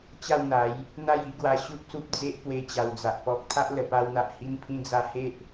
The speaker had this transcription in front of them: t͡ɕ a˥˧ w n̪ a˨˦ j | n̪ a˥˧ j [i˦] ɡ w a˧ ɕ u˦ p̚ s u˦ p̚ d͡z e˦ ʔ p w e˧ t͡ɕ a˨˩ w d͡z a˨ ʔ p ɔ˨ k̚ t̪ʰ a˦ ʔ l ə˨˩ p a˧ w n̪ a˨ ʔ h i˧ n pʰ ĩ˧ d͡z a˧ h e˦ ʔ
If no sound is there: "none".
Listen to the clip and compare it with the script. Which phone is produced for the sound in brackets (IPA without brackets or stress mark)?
i˦